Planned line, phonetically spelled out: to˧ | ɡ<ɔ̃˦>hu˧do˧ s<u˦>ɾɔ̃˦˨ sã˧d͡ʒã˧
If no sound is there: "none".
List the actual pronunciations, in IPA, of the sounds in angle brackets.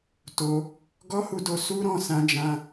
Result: ɔ˦, u˦

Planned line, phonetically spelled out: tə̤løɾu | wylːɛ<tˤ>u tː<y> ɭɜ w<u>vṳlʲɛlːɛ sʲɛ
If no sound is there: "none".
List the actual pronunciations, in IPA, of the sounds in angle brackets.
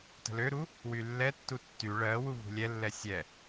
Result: tː, y, u

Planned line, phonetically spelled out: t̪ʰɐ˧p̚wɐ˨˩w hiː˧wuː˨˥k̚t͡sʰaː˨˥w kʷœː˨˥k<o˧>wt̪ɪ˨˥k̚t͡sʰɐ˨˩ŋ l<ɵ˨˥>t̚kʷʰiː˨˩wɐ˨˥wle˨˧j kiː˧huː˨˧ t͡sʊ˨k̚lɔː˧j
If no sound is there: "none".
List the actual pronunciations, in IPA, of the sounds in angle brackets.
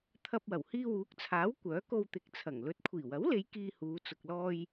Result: o˧, ɵ˨˥

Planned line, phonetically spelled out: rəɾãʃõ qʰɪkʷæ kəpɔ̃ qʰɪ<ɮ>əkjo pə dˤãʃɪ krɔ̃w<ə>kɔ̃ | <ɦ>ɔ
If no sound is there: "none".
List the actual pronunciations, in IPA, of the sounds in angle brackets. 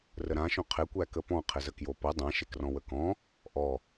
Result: z, ə, ʔ

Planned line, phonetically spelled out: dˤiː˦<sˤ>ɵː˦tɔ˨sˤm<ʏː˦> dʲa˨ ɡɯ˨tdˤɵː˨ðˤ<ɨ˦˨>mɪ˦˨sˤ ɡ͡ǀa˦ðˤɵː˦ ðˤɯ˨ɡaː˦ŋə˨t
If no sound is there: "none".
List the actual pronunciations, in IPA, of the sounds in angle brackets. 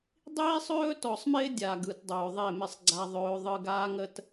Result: sˤ, ɪː˦, e˦˨

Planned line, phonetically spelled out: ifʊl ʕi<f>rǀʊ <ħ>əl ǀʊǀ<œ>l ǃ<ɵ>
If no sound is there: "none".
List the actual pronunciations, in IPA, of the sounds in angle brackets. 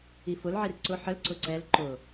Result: none, ħ, ɛ, ʊ

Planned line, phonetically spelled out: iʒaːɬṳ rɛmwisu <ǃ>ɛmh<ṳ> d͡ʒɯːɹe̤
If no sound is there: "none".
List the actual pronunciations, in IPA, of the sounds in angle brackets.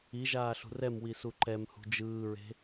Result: ǃ, ṳ

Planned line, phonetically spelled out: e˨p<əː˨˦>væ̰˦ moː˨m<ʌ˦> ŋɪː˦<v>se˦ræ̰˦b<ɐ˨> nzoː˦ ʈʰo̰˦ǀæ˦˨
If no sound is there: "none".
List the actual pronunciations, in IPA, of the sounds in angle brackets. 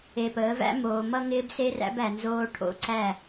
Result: əː˨˦, ʌ˦, b, æ˨

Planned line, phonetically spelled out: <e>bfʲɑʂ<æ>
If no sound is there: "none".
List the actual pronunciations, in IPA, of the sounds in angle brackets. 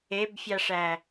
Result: e, æ

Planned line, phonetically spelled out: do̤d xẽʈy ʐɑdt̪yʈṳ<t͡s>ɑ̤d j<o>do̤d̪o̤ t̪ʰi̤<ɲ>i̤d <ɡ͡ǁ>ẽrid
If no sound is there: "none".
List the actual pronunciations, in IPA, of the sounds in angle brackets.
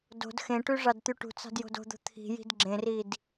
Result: t͡s, o̤, j, ɡ͡ǁ

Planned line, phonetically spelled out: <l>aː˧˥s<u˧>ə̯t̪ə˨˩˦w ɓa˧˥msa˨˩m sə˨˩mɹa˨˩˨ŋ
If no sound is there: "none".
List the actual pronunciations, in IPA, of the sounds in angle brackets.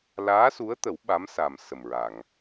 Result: l, u˧˥

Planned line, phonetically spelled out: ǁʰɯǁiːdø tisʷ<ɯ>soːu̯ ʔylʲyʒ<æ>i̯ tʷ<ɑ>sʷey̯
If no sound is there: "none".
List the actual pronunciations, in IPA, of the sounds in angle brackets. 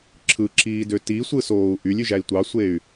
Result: ɯ, æ, ɑ

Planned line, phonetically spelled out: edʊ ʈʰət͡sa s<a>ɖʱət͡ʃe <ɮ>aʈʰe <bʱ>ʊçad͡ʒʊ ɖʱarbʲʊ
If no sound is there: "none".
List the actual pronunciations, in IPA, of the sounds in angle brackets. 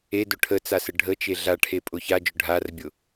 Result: ə, ɮ, pʼ

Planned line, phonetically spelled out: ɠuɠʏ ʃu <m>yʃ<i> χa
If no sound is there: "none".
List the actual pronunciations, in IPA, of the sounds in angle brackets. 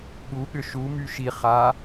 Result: m, i

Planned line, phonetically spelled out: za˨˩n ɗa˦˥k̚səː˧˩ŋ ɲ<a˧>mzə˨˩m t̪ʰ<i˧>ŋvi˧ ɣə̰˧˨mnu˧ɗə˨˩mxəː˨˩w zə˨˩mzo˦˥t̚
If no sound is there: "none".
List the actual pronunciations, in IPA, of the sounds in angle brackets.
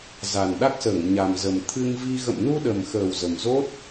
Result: a˨˩, ɨ˧

